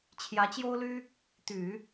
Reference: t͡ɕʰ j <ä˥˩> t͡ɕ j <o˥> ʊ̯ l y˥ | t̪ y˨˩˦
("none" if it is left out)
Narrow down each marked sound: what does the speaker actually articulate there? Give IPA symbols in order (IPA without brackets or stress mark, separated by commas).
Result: ä˧˥, o˥